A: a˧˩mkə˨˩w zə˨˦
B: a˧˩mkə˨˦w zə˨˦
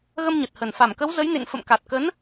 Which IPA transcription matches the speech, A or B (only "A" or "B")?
B